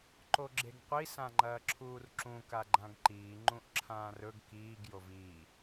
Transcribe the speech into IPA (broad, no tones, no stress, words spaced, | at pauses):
ǃoɡ͡ǁeɡqʷi sãŋ͡ǃɐːǁʰuːrǁũ kaɡ͡ǃãɡǃiː ŋ͡ǃũʔǁʰãːrɵɡ kiːɡ joviː